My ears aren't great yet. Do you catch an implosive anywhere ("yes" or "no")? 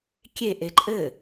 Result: no